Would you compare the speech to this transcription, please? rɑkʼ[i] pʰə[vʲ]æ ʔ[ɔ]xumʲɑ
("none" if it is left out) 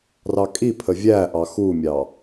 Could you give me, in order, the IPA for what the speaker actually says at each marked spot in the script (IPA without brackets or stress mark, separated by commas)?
i, vʲ, ɑ